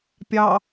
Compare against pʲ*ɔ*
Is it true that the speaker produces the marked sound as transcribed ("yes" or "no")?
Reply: no